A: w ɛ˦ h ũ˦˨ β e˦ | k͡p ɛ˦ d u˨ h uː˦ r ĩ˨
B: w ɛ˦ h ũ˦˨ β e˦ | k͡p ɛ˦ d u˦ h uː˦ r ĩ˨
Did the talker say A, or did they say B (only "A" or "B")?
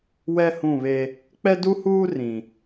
B